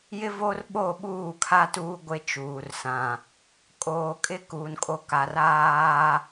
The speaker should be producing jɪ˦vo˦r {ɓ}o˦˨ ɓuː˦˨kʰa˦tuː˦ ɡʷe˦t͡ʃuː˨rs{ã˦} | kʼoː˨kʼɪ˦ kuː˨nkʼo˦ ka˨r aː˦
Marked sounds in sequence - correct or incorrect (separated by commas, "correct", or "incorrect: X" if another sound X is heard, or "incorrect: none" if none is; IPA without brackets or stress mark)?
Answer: correct, incorrect: ã˨